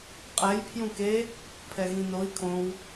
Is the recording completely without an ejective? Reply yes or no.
no